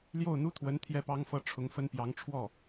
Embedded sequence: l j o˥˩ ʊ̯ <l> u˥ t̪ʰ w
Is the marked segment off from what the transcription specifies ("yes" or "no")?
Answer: yes